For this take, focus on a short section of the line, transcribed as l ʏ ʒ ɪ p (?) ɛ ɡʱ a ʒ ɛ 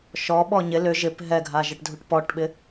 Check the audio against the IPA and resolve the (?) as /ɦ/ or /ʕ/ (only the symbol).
ɦ